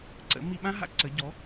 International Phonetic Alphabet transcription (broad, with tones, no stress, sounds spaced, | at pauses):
ǀ ə̰˩˥ m i˧ ɓ ã˥ ɦ a̰˧ ǀ ə˩˥ ɟ ɔ˩˥